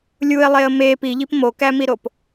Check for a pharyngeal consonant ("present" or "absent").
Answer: absent